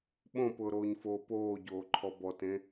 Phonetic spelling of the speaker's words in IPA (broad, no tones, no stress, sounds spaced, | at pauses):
ɓ õ p ʊː ɾ oː ɲ f oː p oː ɟ oː ǃʰ ɔ b ɔ t ẽ